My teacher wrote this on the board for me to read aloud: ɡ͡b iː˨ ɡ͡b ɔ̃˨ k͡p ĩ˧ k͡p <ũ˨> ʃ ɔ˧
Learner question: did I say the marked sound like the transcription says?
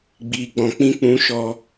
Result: no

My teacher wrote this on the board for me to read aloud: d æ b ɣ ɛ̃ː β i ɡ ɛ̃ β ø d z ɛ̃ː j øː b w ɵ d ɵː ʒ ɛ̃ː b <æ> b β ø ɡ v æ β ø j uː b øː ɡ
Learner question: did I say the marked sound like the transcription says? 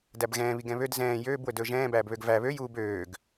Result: no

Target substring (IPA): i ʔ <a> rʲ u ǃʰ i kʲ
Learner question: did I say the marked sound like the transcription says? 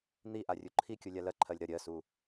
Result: yes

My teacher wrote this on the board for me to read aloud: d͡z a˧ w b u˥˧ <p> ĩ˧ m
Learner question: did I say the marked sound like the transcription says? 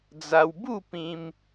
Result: yes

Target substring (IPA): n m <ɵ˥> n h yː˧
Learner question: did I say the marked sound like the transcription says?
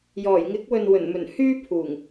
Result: no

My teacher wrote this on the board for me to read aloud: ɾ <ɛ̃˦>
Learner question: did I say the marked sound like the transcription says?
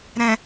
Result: no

